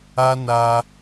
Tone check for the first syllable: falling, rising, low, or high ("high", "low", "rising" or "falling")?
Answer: high